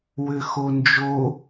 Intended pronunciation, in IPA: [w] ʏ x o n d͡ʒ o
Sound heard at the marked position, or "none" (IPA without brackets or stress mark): w